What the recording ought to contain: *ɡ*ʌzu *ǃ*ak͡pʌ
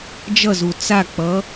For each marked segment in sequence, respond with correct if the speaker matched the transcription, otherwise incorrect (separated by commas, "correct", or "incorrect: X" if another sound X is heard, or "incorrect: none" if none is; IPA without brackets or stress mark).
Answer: incorrect: d͡ʒ, incorrect: t͡s